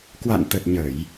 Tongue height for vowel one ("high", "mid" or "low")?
low